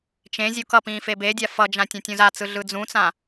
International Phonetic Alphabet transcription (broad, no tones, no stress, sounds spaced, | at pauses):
t͡ʃ ẽ zʲ u k ʌ p ĩː f e b e dʲ a f ʌ d͡ʒ ã tʲ ã tʲ ũ z a t͡s ɯ ɮ ɯ d͡z ũ t͡s ã